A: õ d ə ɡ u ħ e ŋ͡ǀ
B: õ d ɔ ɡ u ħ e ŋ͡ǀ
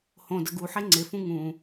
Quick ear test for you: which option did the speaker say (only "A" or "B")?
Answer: A